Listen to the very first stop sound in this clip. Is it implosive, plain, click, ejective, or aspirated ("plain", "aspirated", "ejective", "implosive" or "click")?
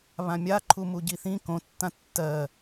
click